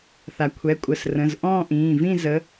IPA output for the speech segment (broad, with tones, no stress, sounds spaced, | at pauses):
θ a˩ kʷʰ ɛ˩˧˩ kʷʼ ə˩˧˩ s r ə̃˩˧˩ z ʔ ɔ̃ː˥˧ ʔ ĩː˩˧˩ v ĩ˥˧ z ə˨˦